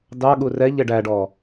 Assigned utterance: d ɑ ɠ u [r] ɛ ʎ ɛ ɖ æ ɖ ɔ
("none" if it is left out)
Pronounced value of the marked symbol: r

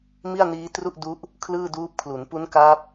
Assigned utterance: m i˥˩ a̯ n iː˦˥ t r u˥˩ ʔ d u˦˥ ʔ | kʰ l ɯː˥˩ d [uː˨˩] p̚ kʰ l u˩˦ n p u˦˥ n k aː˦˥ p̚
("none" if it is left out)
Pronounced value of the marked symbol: uː˦˥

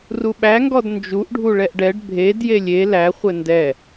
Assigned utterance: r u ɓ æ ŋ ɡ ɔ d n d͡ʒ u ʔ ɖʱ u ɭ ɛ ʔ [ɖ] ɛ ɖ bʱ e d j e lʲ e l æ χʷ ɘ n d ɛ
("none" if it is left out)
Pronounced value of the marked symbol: ɖ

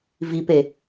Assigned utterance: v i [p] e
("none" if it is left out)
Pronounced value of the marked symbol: p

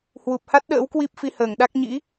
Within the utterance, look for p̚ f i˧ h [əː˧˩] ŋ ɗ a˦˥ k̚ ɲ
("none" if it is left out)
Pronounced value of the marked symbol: əː˧˩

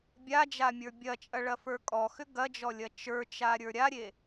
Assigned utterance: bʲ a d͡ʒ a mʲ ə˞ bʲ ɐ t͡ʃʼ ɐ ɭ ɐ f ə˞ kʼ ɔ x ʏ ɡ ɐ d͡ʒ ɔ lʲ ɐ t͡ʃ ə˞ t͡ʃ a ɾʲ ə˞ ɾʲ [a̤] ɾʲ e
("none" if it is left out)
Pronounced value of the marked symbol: a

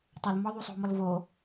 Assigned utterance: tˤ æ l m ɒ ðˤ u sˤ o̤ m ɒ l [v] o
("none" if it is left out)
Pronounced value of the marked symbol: v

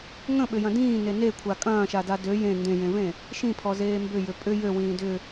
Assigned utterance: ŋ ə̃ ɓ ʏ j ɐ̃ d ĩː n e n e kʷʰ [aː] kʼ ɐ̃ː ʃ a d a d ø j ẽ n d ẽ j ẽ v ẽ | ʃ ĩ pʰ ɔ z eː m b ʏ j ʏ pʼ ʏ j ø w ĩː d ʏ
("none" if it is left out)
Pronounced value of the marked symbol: a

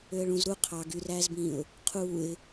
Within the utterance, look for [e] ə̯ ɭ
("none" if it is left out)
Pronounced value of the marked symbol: ø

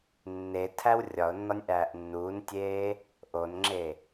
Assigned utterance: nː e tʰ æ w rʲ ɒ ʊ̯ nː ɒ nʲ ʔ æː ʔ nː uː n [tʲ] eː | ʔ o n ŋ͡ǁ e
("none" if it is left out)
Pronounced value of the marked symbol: tʲ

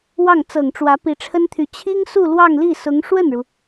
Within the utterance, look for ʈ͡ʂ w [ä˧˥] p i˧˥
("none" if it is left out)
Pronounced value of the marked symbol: ä˧˥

